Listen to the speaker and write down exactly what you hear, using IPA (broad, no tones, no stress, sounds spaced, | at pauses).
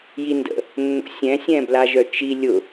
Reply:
j i n d ə̰ | nː o̰ sʲ ɛ̃ sʲ ɛ̃ b l a ʒ œ t͡ʃ i lʲ ʊ